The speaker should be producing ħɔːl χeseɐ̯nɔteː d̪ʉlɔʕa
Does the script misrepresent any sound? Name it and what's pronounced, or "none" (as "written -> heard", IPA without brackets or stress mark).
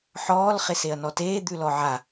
none